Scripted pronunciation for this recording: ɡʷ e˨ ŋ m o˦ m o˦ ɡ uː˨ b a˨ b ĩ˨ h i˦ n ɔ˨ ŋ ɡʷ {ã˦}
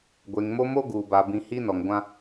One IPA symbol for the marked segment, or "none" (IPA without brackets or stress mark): ã˦